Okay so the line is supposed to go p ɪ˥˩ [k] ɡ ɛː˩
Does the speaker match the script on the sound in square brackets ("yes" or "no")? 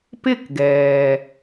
yes